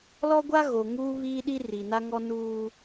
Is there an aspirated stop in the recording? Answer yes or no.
no